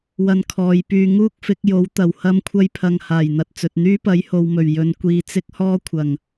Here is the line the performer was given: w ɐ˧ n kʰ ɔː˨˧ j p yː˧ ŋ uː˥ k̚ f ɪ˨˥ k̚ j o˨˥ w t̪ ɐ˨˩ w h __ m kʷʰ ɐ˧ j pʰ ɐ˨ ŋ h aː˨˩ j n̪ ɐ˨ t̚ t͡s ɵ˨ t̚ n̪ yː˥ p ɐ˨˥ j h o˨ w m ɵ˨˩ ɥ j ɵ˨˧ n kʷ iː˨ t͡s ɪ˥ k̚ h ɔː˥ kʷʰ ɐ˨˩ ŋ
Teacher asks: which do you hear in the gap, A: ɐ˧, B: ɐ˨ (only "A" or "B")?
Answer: A